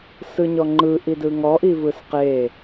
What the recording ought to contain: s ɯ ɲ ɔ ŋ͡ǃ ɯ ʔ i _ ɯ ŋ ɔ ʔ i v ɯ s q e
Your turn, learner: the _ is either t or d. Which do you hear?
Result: d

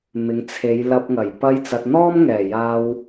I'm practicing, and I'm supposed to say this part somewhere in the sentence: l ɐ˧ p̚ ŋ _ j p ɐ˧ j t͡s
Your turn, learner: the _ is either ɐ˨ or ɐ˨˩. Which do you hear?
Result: ɐ˨˩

